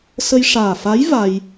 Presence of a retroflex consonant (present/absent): present